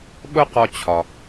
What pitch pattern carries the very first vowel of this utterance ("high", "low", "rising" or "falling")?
high